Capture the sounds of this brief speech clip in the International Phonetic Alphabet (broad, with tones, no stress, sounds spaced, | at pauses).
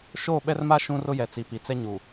ʃ oː˦˨ ɓ ɛ˦ r m a˦ ʃ ũ˦ r ʊ˦ j ɛ˨ t͡s i˨ p i˨ t͡s ɛ˦ ɲ u˨